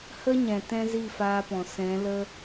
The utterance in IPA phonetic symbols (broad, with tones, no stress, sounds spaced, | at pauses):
h ə˦ ɲ ɛ̃˨ t ɛ̃˦ z i˦˨ f aː˧ p ɔ̃˨ s ɛ̃˨˦ l ə˦